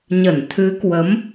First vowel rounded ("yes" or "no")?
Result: no